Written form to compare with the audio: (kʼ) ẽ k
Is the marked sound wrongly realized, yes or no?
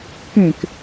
yes